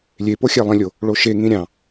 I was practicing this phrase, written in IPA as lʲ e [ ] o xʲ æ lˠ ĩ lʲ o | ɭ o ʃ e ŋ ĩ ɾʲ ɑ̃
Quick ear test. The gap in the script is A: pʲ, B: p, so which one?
B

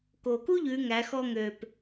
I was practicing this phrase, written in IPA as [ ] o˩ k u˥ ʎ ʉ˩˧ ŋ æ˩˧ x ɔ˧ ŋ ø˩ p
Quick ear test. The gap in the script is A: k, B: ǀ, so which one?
A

